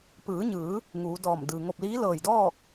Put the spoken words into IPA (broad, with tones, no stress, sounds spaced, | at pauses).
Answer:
p ɯː˩˧ ɲ ɯː˩˧ | ŋ uː˩˧ d ɔː˧˩ m d ɯː˩ ŋ o˧˩ p̚ l iː˧˥ l ɤː˧˩ j d ɔː˥˨ k̚